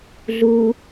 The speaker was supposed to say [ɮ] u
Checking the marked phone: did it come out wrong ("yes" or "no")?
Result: no